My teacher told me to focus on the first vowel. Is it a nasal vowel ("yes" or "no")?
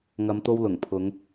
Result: no